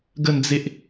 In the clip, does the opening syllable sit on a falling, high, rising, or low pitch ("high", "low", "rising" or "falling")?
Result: falling